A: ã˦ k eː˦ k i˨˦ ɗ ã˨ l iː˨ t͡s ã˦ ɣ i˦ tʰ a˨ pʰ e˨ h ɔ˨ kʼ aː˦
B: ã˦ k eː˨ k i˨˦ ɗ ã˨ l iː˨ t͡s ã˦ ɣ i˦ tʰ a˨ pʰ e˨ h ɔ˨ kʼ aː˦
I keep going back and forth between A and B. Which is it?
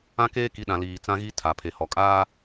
A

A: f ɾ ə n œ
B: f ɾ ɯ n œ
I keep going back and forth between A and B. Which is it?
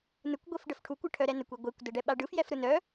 B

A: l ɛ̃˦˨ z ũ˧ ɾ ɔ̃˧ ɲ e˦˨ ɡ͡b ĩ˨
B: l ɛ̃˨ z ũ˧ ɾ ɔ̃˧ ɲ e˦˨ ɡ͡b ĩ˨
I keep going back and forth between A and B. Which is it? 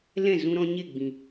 A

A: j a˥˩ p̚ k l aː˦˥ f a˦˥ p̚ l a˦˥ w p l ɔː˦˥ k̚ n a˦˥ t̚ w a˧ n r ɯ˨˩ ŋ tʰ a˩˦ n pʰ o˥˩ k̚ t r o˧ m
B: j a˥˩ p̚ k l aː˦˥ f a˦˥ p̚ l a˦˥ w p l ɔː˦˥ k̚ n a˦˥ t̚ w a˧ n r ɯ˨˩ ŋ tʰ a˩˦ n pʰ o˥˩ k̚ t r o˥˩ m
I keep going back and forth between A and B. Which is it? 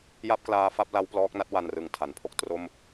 B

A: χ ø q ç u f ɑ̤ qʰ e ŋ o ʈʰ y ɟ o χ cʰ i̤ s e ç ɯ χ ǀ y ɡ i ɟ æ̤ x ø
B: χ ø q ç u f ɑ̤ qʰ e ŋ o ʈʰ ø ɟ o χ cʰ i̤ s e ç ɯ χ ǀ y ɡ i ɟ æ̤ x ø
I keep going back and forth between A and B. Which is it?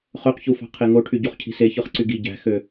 A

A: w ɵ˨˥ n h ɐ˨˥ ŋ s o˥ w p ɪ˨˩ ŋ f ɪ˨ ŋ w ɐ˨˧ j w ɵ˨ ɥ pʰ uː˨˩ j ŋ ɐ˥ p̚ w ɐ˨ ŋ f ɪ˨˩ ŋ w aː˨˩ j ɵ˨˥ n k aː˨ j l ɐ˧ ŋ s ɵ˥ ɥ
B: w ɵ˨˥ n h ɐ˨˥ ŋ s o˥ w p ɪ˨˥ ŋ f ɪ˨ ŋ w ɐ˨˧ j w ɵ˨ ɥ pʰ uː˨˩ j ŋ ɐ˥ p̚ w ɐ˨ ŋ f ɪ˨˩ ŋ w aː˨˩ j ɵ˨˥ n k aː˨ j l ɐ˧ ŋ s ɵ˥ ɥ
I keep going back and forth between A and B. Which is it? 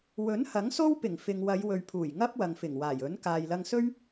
A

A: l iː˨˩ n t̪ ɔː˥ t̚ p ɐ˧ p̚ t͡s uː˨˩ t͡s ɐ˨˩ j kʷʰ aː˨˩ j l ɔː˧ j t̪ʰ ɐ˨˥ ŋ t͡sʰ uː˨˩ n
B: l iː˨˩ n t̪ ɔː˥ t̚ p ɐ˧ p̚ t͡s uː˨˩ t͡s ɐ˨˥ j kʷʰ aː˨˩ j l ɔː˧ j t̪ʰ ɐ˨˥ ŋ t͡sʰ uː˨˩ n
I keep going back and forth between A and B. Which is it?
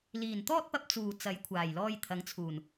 B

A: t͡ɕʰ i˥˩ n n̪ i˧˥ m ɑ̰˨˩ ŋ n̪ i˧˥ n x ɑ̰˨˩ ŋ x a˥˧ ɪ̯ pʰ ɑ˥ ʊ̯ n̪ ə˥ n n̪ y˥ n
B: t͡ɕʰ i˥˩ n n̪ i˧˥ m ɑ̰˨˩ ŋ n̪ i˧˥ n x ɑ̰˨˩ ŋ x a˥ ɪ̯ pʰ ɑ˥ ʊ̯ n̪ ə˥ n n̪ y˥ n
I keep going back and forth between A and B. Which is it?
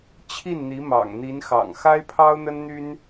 B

